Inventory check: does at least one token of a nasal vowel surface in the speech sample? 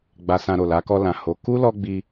yes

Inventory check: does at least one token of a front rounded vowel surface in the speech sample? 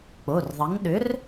yes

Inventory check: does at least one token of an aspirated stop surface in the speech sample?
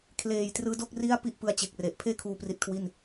yes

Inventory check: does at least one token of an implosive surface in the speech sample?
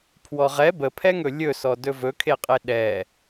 yes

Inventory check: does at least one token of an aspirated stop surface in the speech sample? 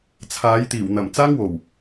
yes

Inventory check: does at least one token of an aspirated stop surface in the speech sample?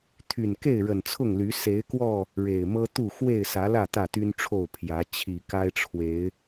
yes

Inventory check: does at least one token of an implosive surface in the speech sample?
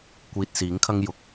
no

